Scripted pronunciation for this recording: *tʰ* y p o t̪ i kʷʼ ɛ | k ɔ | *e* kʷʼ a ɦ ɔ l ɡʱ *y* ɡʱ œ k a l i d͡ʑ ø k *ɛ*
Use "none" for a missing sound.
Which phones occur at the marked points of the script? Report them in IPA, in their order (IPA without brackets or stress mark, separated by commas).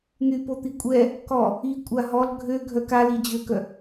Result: n̪, i, ø, œ